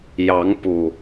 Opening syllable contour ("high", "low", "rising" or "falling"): rising